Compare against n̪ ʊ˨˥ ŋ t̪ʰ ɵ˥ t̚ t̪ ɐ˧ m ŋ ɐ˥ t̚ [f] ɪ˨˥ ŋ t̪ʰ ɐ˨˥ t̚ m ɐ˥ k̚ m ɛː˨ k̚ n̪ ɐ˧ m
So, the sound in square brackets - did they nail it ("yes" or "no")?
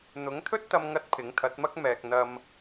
no